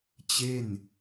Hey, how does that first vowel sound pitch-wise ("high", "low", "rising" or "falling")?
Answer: falling